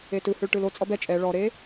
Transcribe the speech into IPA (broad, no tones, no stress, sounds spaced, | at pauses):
e t ɯ h ɯ ɭ ʈ ɯ l o t͡sʼ ɔ b ɛ t͡ʃʼ ɛ ɭ ɔ ɾ e